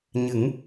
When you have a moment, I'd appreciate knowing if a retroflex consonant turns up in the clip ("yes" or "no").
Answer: no